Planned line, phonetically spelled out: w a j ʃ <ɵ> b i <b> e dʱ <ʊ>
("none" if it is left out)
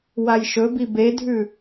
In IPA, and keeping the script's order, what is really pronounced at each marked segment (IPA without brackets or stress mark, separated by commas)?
ɵ, b, ʉ